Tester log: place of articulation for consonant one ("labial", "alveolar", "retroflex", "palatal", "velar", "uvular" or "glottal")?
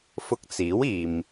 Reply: labial